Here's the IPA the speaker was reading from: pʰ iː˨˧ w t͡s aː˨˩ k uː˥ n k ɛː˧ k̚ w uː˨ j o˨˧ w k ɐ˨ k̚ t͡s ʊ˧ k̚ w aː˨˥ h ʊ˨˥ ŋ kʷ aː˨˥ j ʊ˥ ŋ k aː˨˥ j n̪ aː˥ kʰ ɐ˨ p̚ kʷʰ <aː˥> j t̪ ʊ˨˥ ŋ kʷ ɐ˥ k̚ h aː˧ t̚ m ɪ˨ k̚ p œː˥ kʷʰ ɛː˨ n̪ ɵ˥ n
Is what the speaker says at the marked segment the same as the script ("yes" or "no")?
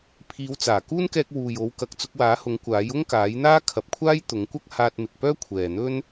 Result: yes